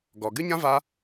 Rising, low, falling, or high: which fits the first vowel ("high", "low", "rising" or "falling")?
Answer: low